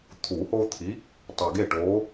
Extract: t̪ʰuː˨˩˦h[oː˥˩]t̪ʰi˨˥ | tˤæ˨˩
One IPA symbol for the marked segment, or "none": oː˦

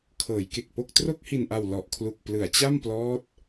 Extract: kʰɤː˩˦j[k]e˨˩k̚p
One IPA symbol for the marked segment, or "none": k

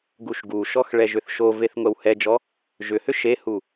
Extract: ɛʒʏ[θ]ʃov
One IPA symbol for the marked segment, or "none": θ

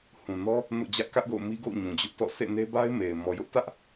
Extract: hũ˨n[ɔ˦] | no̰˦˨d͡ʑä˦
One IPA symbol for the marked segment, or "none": ɔ˦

